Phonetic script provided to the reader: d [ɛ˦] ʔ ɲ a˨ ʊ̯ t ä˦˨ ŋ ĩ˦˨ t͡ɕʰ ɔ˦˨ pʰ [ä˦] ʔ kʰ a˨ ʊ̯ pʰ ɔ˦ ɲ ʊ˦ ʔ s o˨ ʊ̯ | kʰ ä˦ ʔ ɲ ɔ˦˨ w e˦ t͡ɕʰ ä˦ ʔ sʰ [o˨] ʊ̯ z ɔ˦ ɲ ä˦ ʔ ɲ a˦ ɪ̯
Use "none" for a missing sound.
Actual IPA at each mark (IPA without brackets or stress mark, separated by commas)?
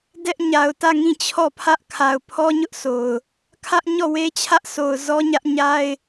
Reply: ɛ˦, ä˦, o˨